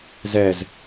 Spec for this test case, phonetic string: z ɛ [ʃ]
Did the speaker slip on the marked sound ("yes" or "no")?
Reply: yes